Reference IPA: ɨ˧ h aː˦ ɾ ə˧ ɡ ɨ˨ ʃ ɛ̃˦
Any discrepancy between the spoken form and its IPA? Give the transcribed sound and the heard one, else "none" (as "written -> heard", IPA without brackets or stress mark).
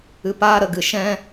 h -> p